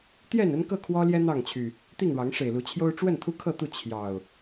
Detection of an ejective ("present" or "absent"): absent